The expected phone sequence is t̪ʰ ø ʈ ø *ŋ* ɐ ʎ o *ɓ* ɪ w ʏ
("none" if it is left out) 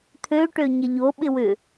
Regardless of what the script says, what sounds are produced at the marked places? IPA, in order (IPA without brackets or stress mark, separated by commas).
ɲ, ɓ